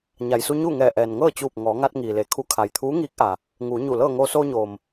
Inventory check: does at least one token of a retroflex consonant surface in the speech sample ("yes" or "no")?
no